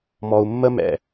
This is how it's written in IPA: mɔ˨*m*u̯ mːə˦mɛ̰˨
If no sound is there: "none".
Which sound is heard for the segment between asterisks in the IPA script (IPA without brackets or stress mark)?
none